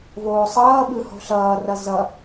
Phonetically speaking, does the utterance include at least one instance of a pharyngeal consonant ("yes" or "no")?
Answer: no